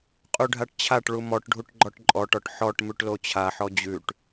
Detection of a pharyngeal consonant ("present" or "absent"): present